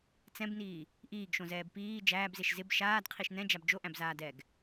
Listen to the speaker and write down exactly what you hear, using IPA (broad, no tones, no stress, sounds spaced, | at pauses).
t͡s ɛ̃ b n iː | ʔ iː ɡ ʃ õ z ɛː b p iː d͡ʒ æː b z e ʃ z ɪ b ʃ aː d qʰ i ʃ n ɛ̃ d͡ʒ a b d͡ʒ o ʔ æ̃ b z aː d ɛː ɡ